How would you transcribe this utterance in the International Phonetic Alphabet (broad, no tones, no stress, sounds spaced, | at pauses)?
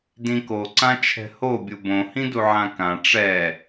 d ĩ k o ǀ ã t͡ʃʰ ɛ̤ h o bʲ u b õ h ĩ d u ʕ ã k ã ʈ͡ʂ ɛ